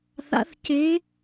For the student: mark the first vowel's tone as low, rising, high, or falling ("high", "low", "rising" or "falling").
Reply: rising